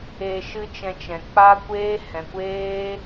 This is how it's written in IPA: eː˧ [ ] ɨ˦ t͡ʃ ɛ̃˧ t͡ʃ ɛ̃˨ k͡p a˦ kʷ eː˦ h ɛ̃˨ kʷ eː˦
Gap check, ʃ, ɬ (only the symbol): ʃ